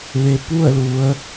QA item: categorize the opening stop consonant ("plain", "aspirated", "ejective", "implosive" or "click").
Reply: plain